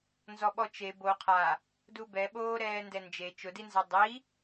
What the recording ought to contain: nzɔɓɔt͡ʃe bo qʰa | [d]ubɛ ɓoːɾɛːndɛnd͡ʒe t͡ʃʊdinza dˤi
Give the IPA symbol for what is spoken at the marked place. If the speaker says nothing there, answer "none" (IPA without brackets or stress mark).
d